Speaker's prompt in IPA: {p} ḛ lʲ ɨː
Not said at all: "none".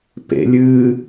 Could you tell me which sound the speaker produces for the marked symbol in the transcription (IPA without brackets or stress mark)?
p